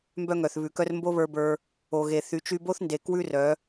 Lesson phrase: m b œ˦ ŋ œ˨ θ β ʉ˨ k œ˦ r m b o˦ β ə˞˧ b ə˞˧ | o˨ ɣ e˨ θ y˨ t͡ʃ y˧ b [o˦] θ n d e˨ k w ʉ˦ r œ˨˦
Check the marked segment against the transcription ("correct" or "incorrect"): correct